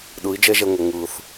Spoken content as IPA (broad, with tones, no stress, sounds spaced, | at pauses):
ɗ ɯ˨˦ i̯ d͡ʒ ɛ˦ ʒ ɛ˧ ŋʷ ɤ˨ ŋ ɯː˨ θ